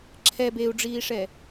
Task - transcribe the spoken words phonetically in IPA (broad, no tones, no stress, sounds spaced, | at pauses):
ǁʰ ɛ b e u̯ ɖ͡ʐ iː ʂ ɛ